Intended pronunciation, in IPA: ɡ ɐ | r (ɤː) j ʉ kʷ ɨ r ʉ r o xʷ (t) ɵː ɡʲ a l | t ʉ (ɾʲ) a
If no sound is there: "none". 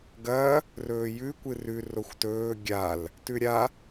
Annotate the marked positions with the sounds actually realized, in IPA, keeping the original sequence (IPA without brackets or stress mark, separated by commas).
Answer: ɵː, t, ɾʲ